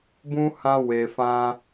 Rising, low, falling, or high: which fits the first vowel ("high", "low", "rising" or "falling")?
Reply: high